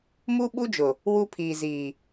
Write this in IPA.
mu˦ ɓu˦d͡ʒʊ˨ | wu˦pʰiː˨ziː˨

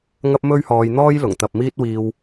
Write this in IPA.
ŋɐ˥p̚mɵ˥ɥhɔː˧jn̪ɔː˥j lʊ˨˩ŋt̪ɐ˨p̚ miː˥t̚wiː˧w

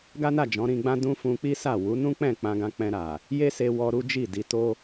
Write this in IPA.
ɡa˦na˦˨ d͡ʒɔ̃˨˦ɾĩ˧ɡ͡bã˦ dũ˦fũ˧k͡pi˦sa˦˨ wu˨˦nũ˦k͡pɛ̃˦˨ k͡pã˧ɡã˧k͡pɛ̃˧ɾa˨ | je˦se˧ wɔ˧ɾu˦ d͡ʒi˦˨di˧to˦

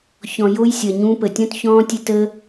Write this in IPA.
çɔ̃˨jo˧jsʲʌ˨ ɲũ˧ pə˨tʲɔ̃˦t çɔ̃ː˦tʲə˦tə˦

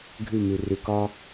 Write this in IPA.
ɡʱʉ˦˨mʉ˨ rʉ˨kɒ˦

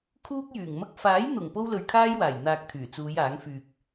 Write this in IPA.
kʰuː˥k̚jyː˨˩ŋmɐ˥k̚ faː˨˥jn̪ʊ˨˩ŋ po˥wlɵ˧ɥkʰaː˥jwaː˨˩j n̪aː˧k̚t̪ʰyː˨˩ t͡suː˨˧j aː˨˥ŋfyː˧k̚

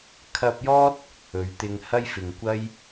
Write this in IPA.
kʰɐ˧p̚jɔː˥t̚ | ɵ˨˧ɥt̪ɪ˧ŋ hɐ˥jfɪ˨ŋkʷɐ˥j

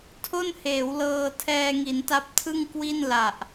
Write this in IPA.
tʰo˥˩nheː˩˦wlɤː˧ tʰɛː˧ŋi˩˦nta˦˥p̚ tʰɯ˥˩ŋkwi˥˩n la˨˩ʔ

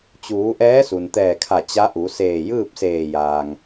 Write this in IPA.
t͡ɕuː˩˧ ʔɛː˧˥su˩nt̪ɛː˧˩kʰa˧˩ t͡ɕa˧˥ʔu˩˧ seː˧˩jɯː˥˨p̚seː˧˩jaː˩ŋ

